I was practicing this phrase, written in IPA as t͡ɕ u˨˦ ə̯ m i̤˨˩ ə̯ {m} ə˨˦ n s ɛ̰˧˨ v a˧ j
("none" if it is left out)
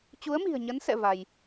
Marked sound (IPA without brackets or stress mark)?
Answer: ɲ